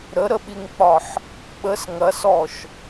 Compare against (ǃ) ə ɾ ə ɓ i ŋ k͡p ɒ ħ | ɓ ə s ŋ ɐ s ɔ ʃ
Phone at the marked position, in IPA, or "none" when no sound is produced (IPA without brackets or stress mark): ɾ